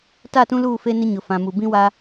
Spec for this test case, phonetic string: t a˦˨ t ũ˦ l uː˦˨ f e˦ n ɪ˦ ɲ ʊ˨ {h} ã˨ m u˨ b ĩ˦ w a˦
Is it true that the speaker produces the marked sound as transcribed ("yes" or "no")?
no